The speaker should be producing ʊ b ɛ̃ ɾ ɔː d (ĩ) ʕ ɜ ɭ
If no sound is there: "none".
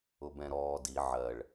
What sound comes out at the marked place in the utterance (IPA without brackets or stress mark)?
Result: i